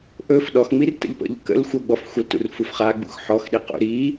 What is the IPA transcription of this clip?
ʔ ɵ f ɗ ɔ x ŋ͡m i r t ə̰ ʎ p ə̰ ʎ k ə̰ l xʷ ɤ ɡ͡b ɔ f xʷ ə l t ṵ r f u f χ a ɡ͡b ṵ x ħ ɔ x ɗ i q ṵ ɾ i

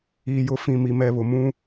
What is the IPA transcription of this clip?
iː˨ j ʊ˨ f ĩ˨ m i˨ m ɛ˨ β ʊ˨ m ũ˦

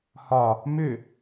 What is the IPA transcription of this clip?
h ɒ | m ʏ

